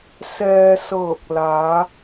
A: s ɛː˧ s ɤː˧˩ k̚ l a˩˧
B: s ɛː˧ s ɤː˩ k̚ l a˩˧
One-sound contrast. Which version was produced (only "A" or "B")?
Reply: A